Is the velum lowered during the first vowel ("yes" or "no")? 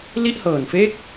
no